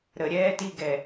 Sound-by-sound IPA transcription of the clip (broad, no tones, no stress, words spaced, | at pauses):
ɾə ɾʲɛːtiɡɛ